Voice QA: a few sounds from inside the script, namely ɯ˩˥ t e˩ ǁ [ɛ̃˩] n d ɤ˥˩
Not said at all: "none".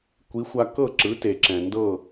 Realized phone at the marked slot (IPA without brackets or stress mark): ɛ̃˩